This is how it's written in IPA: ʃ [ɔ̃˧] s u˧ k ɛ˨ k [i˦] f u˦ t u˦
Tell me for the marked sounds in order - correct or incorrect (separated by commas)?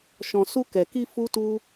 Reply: correct, incorrect